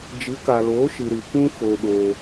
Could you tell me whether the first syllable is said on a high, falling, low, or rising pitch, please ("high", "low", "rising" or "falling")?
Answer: rising